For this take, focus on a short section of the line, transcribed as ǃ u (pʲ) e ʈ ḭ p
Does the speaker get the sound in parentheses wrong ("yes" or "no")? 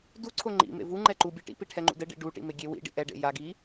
yes